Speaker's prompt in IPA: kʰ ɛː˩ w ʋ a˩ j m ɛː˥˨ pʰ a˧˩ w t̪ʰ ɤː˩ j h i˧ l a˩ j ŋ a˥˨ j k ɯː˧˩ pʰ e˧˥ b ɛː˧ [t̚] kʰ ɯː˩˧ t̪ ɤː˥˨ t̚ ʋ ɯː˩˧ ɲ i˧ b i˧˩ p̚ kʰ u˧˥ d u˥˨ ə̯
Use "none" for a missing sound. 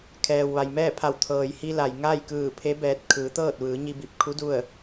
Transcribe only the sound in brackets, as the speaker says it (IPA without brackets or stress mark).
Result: t̚